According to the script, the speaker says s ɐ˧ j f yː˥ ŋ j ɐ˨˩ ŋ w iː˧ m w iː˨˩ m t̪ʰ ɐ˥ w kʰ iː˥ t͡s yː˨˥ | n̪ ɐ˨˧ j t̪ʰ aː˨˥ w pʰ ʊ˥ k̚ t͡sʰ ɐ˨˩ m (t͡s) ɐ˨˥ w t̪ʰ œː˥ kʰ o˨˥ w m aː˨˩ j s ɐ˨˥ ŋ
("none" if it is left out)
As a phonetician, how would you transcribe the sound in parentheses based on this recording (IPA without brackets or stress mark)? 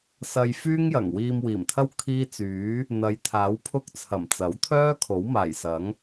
t͡s